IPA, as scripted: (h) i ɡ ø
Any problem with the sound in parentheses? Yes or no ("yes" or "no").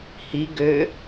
no